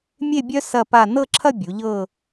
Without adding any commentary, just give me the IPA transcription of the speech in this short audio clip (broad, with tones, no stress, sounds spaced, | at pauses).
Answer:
mʲ e˥˧ bʲ œ˥ s ɐ˥˧ p a˥˧ n ɤ˥˧ ǁʰ ɐ˥˧ bʲ u˩˧ ʎ ɤ˥˧